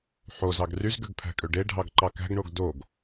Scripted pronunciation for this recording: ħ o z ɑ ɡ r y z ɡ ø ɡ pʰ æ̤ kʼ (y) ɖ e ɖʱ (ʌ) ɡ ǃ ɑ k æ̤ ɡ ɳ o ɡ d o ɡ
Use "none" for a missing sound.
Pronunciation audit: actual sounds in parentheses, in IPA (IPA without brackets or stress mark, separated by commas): ø, ɑ